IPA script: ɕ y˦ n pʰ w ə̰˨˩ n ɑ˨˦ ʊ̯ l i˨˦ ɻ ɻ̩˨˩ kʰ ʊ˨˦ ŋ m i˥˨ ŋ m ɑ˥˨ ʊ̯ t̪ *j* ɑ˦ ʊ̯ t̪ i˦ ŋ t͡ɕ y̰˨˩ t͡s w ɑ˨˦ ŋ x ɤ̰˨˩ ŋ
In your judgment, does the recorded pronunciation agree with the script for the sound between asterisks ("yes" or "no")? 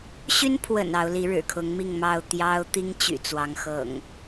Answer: yes